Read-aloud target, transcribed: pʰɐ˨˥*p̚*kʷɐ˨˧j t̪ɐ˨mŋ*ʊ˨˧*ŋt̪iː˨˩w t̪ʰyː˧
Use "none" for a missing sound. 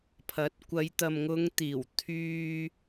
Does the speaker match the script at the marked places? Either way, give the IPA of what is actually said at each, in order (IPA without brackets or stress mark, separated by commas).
t̚, ʊ˨˧